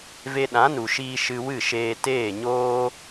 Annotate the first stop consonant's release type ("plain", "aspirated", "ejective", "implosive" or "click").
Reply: implosive